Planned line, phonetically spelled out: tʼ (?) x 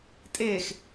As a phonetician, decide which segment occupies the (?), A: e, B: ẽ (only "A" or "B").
A